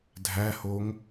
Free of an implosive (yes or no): yes